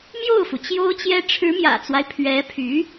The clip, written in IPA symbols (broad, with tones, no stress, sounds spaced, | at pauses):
m j o˥˩ ʊ̯ f u˩ t͡ɕ j o˥ ʊ̯ t͡ɕ j ɛ˥ ʈ͡ʂʰ ɻ̩˧˥ m j ä̰˨˩ t͡s w a˦ ɪ̯ pʰ ɥ ɛ˧˥ pʰ y˧˥